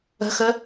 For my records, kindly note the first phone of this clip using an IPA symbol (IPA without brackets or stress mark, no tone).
ə̤